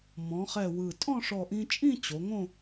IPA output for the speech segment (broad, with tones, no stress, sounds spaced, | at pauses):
m ɔ̃˩˧ χ ɛ˧˩ w ɯ˧˩ tʼ ɔ̃˥˧ ʂ ɔ˧˩ ʔ ĩ˧ t͡ʃʼ ĩ˥˧ t͡ɕ o˩˧ ŋ õ˥˧